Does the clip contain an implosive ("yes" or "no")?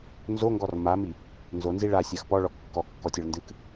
no